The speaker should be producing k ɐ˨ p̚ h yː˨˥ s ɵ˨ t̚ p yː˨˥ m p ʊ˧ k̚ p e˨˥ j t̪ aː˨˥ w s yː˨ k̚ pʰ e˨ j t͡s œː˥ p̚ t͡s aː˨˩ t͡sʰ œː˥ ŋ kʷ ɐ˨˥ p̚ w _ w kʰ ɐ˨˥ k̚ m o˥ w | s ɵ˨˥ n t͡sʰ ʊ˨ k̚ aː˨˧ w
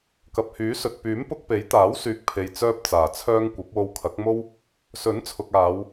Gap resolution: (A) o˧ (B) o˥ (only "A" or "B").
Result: A